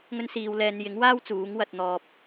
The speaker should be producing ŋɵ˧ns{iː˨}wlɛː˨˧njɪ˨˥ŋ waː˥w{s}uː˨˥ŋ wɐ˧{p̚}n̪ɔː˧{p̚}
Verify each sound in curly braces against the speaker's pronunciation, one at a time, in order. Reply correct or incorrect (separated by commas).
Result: correct, incorrect, incorrect, correct